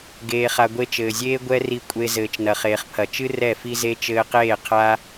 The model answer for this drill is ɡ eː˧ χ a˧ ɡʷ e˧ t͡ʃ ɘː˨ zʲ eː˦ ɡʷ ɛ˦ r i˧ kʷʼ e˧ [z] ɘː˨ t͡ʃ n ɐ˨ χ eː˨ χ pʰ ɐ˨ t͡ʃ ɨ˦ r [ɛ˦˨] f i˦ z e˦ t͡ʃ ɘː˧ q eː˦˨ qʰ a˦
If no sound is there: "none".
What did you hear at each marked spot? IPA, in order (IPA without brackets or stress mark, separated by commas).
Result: z, ɛ˦˨